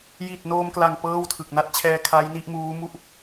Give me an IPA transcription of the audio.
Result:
j i˨˩ t̚ n oː˧ m k l a˨˩ ŋ p ɤː˥˩ w tʰ ɯ˨˩ k̚ n a˥˩ t̚ t͡ɕʰ ɛː˧ kʰ a˦˥ j n i˥˩ ʔ m uː˦˥ m u˥˩ ʔ

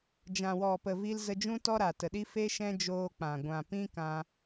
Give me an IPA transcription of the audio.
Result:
d͡ʒ ã˨ w ɔ˨ p ə˨ v i˧ l z ə˧ d͡ʒ ũ˦ t ɔ˦ ɾ a˨ t ə˨ ɗ i˦ f e˦ ʃ ɛ̃˦ d͡ʒ oː˧ k͡p ã˨ ɡʷ ã˨ p ĩ˦ k ã˧

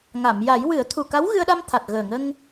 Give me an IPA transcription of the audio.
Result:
ŋ a˨˩˨ m j a˨˩˦ j w ɨ˨˩˦ ə̯ t̪ʰ u˨˩ k a˧˥ w ɣ ɨ˧ ə̯ ɗ a˧ m t̪ʰ a˨˩ t̚ ɣ əː˨˩ ŋ ə˧ ŋ

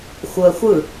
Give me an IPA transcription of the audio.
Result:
xʷ ɤ ə̯ xʷ ɯ

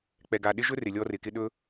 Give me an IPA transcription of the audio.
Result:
k͡p ɛ˨ ɡ a˨ ɗ ɪ˦ ʒ ɵ˦ r ɪ˨ lʲ ɔ˦ r ɪ˨ k ɪ˦ ɗ ɵ˦

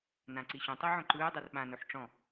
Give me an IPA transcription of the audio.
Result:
n ã ǀ i ɕ õ tˤ e ʕ õ ǃ ɯː dˤ ɤ r ɓ ã n o ħ ʈ͡ʂ ɔ̃

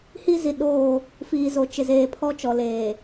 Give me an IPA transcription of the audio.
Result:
h i˦ z i˨ ɗ oː˦˨ | f iː˨ z o˨ t͡ʃ ɪ˨ z eː˨ pʰ ɔ˦ t͡ʃ ɔ˨ l eː˨

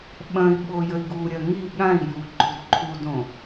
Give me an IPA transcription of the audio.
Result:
ɓ ɐ̃ i̯ ɓ o j ə i̯ ɡ u ɾʲ ɐ ŋ i ɠ ã i̯ j u ɡ͡ǃ u d ǃʰ u d õ

